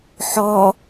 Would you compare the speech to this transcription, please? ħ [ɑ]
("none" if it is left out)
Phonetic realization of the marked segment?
ɔ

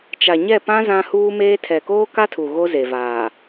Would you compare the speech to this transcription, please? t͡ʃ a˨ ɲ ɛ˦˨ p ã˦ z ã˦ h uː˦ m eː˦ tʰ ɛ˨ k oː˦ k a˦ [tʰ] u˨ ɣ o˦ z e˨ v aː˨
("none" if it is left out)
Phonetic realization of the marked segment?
tʰ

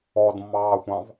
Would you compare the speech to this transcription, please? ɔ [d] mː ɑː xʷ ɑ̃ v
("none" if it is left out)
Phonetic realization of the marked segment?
d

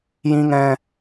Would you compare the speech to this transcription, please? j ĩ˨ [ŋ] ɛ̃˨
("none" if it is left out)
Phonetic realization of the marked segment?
ŋ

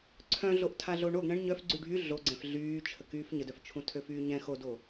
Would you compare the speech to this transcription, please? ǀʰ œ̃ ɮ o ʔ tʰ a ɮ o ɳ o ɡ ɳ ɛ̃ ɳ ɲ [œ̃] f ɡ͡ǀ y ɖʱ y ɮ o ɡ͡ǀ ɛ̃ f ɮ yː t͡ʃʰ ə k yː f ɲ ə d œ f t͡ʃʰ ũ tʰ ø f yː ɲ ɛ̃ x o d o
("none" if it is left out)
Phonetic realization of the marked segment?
œ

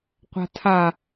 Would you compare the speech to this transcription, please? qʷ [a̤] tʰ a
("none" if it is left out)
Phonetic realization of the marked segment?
a̤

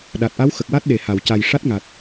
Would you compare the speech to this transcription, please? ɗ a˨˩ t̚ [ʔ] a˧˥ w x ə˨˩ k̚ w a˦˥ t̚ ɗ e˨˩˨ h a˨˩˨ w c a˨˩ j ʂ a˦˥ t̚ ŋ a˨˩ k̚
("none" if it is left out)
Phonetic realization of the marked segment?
ʔ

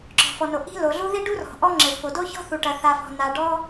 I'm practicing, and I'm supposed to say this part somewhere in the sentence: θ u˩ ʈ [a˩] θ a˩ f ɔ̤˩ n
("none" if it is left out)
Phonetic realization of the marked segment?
ɐ˩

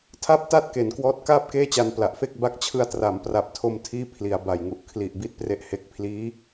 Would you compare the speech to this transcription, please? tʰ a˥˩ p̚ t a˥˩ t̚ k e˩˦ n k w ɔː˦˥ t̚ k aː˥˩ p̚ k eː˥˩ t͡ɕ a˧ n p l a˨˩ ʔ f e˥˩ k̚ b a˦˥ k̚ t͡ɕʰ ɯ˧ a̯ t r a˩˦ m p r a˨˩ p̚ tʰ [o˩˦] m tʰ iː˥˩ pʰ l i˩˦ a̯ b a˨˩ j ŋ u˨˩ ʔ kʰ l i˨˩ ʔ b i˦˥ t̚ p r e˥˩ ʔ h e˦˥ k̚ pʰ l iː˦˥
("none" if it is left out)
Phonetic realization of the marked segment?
o˧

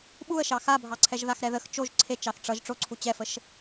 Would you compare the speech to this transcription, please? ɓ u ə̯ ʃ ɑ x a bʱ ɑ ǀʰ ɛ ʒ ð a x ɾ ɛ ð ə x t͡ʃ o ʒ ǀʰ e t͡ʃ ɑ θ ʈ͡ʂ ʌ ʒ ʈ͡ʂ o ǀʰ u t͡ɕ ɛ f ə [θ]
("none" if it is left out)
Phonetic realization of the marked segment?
ʃ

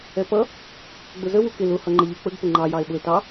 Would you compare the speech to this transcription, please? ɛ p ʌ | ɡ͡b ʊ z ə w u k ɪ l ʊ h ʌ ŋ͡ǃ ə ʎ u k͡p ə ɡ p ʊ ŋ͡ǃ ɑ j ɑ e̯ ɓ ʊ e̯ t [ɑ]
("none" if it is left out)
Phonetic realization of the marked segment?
ɑ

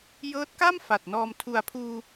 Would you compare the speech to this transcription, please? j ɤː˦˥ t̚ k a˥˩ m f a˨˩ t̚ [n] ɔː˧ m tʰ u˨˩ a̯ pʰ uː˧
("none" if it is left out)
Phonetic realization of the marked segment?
n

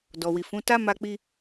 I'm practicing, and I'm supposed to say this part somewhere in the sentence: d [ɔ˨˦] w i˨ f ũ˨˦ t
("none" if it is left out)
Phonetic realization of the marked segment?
ɔ˨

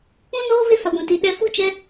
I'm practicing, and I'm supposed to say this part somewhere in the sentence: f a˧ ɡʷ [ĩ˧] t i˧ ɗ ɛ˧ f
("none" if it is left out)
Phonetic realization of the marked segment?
ĩ˧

